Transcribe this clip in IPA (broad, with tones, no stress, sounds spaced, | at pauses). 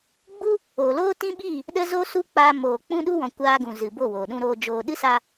ɡ͡b u˦ | oː˨ l oː˦ t ĩ˦ ɓ iː˦˨ | ɗ ə˦ z o˦ s u˦ k͡p aː˧ m oː˨ k͡p ũ˦ ɗ u˦ w ɔ̃˨ kʷ aː˧ ɡ ũ˨ z ɨ˨ b o˦˨ w oː˨ ɗ ũ˦ ɾ oː˧ d͡ʒ oː˧ ɗ ɨ˦ s aː˧